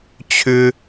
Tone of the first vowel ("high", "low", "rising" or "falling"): high